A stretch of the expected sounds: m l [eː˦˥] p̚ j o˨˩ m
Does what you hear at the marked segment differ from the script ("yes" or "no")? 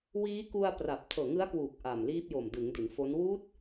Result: yes